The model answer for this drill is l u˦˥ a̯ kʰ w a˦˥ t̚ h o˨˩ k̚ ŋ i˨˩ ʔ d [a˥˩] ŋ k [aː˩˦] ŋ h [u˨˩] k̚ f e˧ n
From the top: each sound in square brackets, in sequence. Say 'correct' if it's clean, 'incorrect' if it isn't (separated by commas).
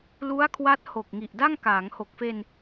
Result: correct, correct, incorrect